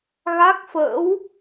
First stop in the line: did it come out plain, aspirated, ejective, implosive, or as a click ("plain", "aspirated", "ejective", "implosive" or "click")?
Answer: plain